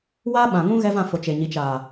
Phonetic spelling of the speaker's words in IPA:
w aː˦ ɓ ã˨ ŋ ũ˦ ɣ ɛ˦ v ã˦˨ f o˨ t͡ʃ e˨ ɲ i˨ t͡ʃ aː˨

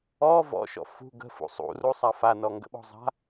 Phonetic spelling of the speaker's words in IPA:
ɔ v ɔ̰ ʃ ɔ̰ f ṳ ɡ ə̤ f ṵ sˤ ṵ r u sˤ a f a n ɔ ŋ ɡ ə̰ ɓ ɔ̤ zˤ a̤

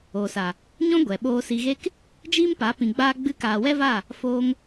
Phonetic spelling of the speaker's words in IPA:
oː˨ s a˨ | ɲ ɔ̃˦ ɡʷ ɛ˨ ɓ oː˧ s i˧ ɣ e˦ k | d͡ʒ iː˦ m p a˨˦ p ĩ˧ ɡ͡b aː˦ ɡ͡b ɨ˦ k aː˧ w ɛ˦ v a˦˨ | f oː˦ ŋ

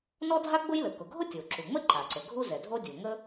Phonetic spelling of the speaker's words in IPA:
n ɔ˥ dʱ a˥ ɡ͡b ʊ˥ j l ə˩ k ʊ˩ ɡʱ ʊ˥ tʲ o˩ ǁ u˩ ŋ͡m ə˥ ǃ a˩ ǀ ə˩ ɡʱ u˥ z ɛ˩ dʱ o˥ dʲ o˩ ŋ ə˥

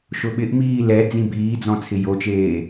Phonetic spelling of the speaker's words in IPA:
ʃ ʊ ɓ ɪ ʔ m iː l ɛ d͡z ĩ b iː d͡z ɔ̃ t͡sʰ ɪ j o t͡ʃ eː

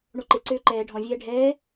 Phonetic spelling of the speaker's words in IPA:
ɳ o ǃ e ǀ øː ǃ ɛː ɖʱ ɔ̃ vʲ ɛː ɖʱ ɛː

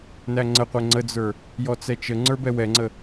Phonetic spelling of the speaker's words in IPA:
n æ ŋ͡ǀ ə qʷ ɛ ŋ͡ǀ ə d͡z ə˞ | j ɔ t͡s ɛ t͡ʃ ə ŋ͡ǀ ə˞ b ɛ w ɛ ŋ͡ǀ ə

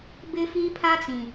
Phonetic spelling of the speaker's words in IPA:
b ɪ˦ f iː˦ pʰ a˦ t͡s ĩ˨

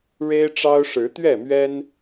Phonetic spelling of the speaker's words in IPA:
ɻ e˦ ɪ̯ ʈ͡ʂ ɑ˦ ʊ̯ ʂ ɻ̩˨˦ t̪ ɥ ɛ˥˨ m ɥ ɛ˦ n

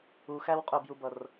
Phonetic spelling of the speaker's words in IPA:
u x æ w qʼ ʊ b j u b ʌ r

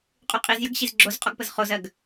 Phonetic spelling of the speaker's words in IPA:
qʼ y qʼ i z j ə ɡ ɕ i z ɡ͡ǁ o z qʼ ɔ ɡ p ə z χ o z ɜ ɡ

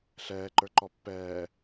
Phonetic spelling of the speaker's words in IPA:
ɬ ɛː ǃ ə˞ ǃ ɔ pː ɛː

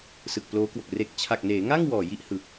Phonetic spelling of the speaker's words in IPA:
s ɯ˨˩ k̚ p l oː˦˥ k w o˨˩ k̚ r e˨˩ k̚ t͡ɕʰ a˨˩ k̚ n eː˩˦ ŋ a˥˩ ŋ w ɔː˨˩ j i˥˩ ʔ h ɯ˨˩ k̚

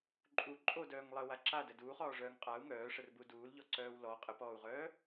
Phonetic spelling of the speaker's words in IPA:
ǃʼ u ǃʼ o d œː ŋ lˠ ə w a ǁ a d ə d uː χ ɔː ʐ œː ŋ qʼ a u̯ ŋ œː ʂ ə r b u d uː l ʎ ɔ ǀ œː w l ɔ qʼ ə p ɔː u̯ ʁ œː

